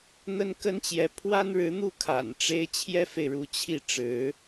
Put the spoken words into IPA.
n̪ə˥nkə˥nt͡ɕjɛ˧˥ pʰwa˥nɻɻ̩˧˥n̪u˥˩ kʰa̰˨˩nʈ͡ʂe˥ɪ̯ t͡ɕʰjɛ˥fe˨ɪ̯ɻu˧˥ t͡ɕʰi˥˩ ʈ͡ʂɻ̩˧˥

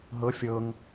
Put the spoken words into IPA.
ɦɤ fʲɤŋ

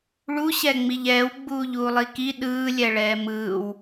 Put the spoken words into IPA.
ɭuɕɛŋ͡miʎ ɛːwɡ͡buːʎuːlˠi ki ɗɯːlʲɛɭɛː mɯːw

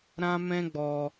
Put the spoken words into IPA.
ɾã˦mɛ̃˦ɡ͡bɔ˧

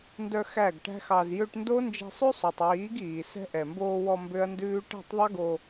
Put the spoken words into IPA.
ndœ˧ xæ˦˨ɡʈæ̤˦xɑ˧z jø˧ʈndo˦ nd͡ʒɛ̤˧sˤʉ˦sˤo˨tˤwiː˨˦ɡ iː˨ sɛ̤˧ʔɛ˨mboː˧wɔ˧ mbø˦ɐ̯ndʉː˦ ʈæ̤˦˨tˤðˤɛ˦ɡo˧

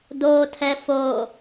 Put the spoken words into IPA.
dotʰɛ fo

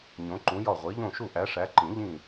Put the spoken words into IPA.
ɲõ˨˦ǃũ˨˦jɒ˦˨ ʁʷi˨˦ʎõ˦˨ʃu˦˨ ʔæ˨˦ʂæ˨˦ǃĩ˨˩˦ ʎĩ˦˨

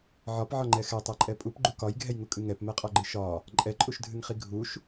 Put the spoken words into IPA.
ʕɒpʕɒŋ͡ǃɛ xɛtˤɛǃʼɛ pʼupɡ͡ǃu kɒjɡʱɛjŋukʼɨ ŋɛpmɛqʼɒɡ͡ǃɨ ʃɒ | ǃʼɛǃʼuʃdʱɨŋχi ɡʱuʃ

